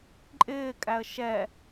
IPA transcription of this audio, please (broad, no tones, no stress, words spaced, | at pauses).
ǃʼɪːkʼæə̯ ʃɛ